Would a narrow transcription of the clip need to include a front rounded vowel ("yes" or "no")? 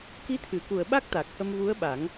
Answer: no